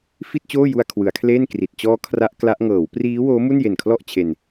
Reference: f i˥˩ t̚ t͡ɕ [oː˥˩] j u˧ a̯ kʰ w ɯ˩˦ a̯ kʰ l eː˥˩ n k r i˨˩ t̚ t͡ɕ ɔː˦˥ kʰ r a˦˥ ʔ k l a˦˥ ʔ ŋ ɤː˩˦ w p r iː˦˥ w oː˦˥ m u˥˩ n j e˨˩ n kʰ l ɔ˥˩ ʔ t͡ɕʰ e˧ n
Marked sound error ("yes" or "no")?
no